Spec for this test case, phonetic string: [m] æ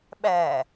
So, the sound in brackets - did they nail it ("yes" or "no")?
no